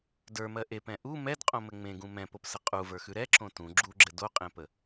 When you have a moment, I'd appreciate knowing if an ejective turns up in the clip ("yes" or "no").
yes